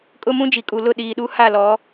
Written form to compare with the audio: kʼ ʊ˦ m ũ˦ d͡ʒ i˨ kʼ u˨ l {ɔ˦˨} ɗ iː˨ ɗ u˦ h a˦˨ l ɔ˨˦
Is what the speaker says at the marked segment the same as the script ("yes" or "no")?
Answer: no